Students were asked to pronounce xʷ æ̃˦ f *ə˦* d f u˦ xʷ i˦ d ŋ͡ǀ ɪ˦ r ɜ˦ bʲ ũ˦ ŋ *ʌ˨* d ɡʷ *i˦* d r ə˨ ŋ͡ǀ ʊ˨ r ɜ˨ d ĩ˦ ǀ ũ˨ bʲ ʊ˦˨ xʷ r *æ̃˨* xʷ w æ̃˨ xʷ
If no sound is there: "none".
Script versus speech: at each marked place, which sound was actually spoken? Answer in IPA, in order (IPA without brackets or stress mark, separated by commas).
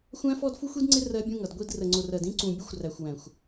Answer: ɔ˦, ʌ˨, i˦, æ˨